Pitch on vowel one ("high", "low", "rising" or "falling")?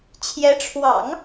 rising